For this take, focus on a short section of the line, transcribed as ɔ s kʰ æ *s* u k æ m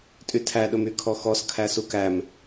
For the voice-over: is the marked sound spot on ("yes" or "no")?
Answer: yes